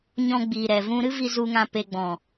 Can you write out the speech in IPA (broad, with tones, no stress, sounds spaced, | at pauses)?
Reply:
ɲ ɔ̃˧ ɡ͡b iː˨ ɾ ɛ˨ v ũ˧ ɾ ɨ˦ v i˧ z u˨ ŋ ã˨ p e˨ ɡ͡b ɔ̃˨